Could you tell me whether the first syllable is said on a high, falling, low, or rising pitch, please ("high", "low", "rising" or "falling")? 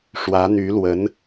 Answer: rising